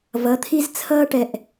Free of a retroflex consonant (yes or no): no